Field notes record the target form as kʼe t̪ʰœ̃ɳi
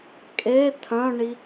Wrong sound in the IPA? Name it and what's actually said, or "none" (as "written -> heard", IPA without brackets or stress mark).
none